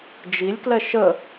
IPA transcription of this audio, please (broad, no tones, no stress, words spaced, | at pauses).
d͡ʒilʲklɛ ʃə